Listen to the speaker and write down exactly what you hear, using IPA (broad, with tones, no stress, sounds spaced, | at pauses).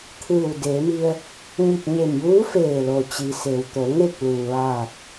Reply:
t̪ʰ ɯː˧˩ w d eː˩˧ m i˧ ə̯ | ɲ i˧˩ p̚ ɲ e˧˩ m j uː˧˥ f eː˧˩ l o˩ t͡ɕ i˩ s e˩ w t̪ o˩˧ ŋ e˥˨ k̚ l uː˩ ʋ aː˧˩ k̚